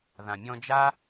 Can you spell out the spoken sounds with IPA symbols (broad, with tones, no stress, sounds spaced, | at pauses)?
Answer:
ð ã˨ mʲ ɔ̃˧ d͡ʒ a˦